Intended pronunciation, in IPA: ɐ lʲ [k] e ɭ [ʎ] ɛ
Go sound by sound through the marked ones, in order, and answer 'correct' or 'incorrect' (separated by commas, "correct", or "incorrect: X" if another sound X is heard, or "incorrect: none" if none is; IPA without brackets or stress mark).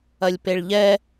incorrect: p, correct